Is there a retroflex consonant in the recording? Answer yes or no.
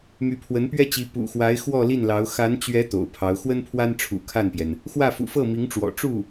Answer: yes